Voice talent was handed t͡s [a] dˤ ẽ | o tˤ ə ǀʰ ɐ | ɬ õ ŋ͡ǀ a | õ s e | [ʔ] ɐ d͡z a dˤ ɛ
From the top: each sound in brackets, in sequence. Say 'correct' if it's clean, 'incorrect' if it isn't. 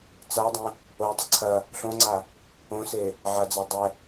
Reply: correct, incorrect

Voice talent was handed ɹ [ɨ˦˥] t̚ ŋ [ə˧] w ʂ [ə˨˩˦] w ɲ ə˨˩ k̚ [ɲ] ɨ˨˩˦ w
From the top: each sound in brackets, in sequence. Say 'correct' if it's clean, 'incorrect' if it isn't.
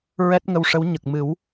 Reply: incorrect, correct, incorrect, incorrect

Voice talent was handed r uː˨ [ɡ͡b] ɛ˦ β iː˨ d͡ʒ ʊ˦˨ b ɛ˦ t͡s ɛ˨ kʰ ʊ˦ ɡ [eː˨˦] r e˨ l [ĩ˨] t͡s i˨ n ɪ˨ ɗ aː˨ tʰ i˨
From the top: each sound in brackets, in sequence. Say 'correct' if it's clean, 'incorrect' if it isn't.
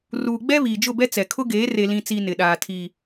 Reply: correct, correct, correct

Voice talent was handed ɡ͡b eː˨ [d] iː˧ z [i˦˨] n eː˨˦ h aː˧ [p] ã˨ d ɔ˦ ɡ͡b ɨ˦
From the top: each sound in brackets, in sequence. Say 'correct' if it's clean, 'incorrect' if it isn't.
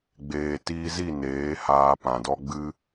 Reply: incorrect, correct, correct

